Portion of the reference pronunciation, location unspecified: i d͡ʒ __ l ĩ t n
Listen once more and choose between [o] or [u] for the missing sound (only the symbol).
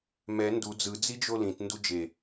o